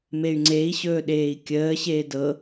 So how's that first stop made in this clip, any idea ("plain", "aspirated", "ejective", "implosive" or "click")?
click